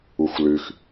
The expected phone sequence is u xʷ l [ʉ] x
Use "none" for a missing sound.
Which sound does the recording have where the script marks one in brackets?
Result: ʉ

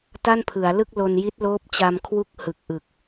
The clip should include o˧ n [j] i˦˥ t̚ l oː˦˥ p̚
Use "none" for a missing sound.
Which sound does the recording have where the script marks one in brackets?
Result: j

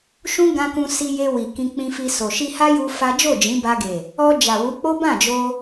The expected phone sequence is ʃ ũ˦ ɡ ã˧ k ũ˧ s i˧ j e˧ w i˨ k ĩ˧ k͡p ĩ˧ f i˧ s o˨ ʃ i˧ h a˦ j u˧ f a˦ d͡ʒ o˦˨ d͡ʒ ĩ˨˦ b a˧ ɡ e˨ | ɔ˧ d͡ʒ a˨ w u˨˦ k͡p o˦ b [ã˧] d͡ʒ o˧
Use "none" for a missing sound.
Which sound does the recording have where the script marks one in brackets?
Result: ã˦˨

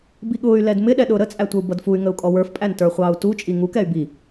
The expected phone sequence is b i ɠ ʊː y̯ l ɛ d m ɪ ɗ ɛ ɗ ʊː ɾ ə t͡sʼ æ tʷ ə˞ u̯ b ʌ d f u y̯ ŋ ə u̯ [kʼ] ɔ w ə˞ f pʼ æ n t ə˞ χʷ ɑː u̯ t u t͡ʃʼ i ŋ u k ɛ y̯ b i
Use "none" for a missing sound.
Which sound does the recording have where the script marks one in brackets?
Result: kʼ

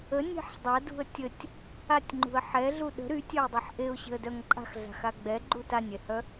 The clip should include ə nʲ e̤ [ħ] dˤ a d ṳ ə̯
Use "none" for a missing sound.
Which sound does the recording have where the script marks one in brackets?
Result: ħ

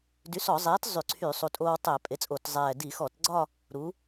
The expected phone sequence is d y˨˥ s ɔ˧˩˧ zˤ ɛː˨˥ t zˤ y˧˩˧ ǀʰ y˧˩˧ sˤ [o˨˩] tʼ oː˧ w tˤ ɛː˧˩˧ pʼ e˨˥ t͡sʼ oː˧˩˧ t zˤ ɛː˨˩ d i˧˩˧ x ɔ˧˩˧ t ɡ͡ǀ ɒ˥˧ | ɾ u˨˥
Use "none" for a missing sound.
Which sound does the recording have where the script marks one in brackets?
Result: u˨˩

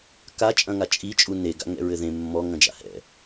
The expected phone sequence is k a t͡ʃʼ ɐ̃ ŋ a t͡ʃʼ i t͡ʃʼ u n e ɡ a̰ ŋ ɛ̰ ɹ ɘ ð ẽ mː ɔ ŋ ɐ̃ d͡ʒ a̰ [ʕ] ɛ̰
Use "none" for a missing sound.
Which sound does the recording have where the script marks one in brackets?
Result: h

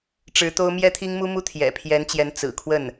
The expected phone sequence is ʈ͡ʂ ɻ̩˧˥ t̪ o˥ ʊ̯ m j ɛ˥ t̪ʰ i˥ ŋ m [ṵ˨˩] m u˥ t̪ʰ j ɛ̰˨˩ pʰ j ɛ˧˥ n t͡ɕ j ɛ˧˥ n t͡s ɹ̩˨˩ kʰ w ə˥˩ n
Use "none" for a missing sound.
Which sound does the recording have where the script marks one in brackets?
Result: u˥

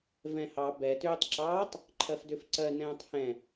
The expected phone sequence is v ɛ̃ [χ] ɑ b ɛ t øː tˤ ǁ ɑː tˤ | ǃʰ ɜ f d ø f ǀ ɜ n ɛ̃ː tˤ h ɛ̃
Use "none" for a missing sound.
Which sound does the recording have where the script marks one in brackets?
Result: h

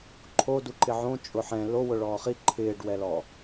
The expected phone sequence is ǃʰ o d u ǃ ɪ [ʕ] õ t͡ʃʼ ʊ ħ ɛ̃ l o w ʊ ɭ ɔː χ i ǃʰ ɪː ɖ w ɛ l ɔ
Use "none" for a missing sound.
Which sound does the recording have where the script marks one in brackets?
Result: ʕ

